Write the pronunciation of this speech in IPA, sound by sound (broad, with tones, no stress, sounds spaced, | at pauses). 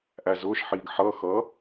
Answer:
ʔ æ˩ z ʊː˩˧˩ ʃ ħ iː˩ ɡ ħ ʌː˩˧˩ x ʌː˩˥